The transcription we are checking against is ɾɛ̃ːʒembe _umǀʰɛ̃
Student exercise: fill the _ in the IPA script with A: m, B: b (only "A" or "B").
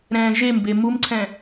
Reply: A